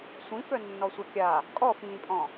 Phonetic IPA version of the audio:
sʷ ĩ f œ nː ɔ sʷ œ kʲ a | kʼ ɔ f ĩː pʼ ɔ̃

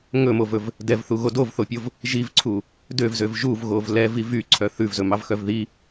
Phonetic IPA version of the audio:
ŋ ɵ m o v ɵ v | d ɛ v θ u ɣ o d o v θ o pʲ o v | ʒ i v ǀʰ u | d ø v z ø v ʒ u v ɣ o v l ɛ v i v y ǀʰ œ θ ʉ v z ɵ m ɑ v x œ v ð i

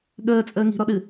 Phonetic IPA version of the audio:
ɠ əː t͡sʼ əː ŋ i̤ ɾ ɔ ɗ ɨ

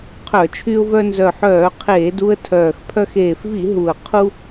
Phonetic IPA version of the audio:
qʰ œ˧˩˧ t͡ʃʰ y˧ ʊ̯ v œ˧ n z œ˨˩ ħ œː˧˩˧ qʰ eː˧˩˧ d u˧ ə̯ tʰ œː˨˩ x pʰ œ˧ x eː˨˩ f v i˧˩˧ ɦ u˨˩ ə̯ qʰ u˧

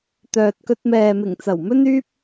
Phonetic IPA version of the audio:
t̪ œː˨ t̚ k ɵ˧ t̚ m ɛː˨ m ɪ˨˩ ŋ t͡s ɐ˨˩ w m ɵ˥ n yː˥ p̚

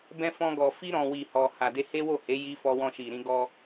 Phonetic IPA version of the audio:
b ɛ̃˦ f ɔ̃˦ ɡ ɔ˧ f i˦ ɾ ɔ̃˧ w i˨ h ɔ˨ h a˨ d e˧ h e˦ w o˦˨ h e˨˦ j i˦ f ɔ˦ w ɔ̃˧ ʃ i˨ ɾ ĩ˧ ɡ ɔ˧

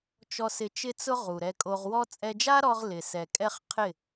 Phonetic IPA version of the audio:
t͡ʃ ɔ˧ s ɪ˧ t͡ʃ ɪ˦ t͡s ʊ˦ ʁ u˨ ɾ ɛ˧ kʼ o˧ ʁ w ɔ˦ t͡sʼ ɛ˧ d͡ʒ a˦ ɾ ɔ˧ ʁ l ɪ˨ s ɛ˨ kʼ ɛ˦ χ qʰ ɪ˦˨

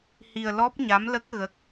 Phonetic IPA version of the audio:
h i˧ ə̯ l ɔ˦˥ p̚ ɲ a˧˥ m l ə˦˥ k̚ ɣ ə˦˥ k̚

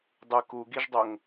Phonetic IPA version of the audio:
dˤ ɯ k u ɡ i ʒ dˤ o ŋ

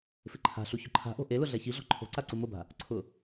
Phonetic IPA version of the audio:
f ɪ ǃʰ a̤ ɬ u ç ʊ ǃʰ a̤ ʔ o̤ ʔ e l ʊ ɮ ɛ ç i ɮ ɔ̤ ǃʰ o̤ ǀ a ǀ u m ʊ b a̤ | ǀʰ ʊ

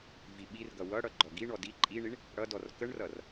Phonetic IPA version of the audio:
v i ɓ i r ɡ ʌ w ʌ ɽ ʌ ɡ͡ǃ ɔ ɡ i ɳ ɔ d i ǃʼ i ɳ i ɳ | ɽ ʌ d ɔ r k ə ɳ r ʌ r

